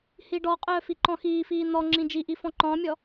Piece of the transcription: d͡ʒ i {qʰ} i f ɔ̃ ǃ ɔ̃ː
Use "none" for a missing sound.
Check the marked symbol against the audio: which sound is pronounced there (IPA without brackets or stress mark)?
ʔ